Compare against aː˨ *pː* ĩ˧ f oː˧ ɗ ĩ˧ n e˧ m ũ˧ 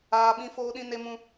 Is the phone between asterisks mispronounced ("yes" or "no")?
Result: yes